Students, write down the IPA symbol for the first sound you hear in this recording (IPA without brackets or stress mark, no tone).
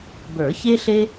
b